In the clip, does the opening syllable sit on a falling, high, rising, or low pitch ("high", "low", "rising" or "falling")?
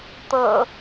low